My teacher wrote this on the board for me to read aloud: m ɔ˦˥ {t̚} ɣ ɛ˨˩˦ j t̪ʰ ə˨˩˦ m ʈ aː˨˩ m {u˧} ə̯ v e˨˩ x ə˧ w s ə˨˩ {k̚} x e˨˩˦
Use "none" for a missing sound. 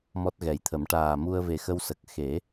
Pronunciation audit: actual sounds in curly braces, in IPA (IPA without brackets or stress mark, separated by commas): t̚, u˧, k̚